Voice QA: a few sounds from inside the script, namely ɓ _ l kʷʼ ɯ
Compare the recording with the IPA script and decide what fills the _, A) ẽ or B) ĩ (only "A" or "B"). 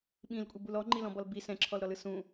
B